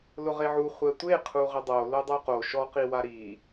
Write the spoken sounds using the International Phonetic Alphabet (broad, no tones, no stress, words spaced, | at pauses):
lʊʁeʕu χʷɛtʷeqʰu ʁɪdˤo lʊdˤoqo ʃɔqiwa ɾi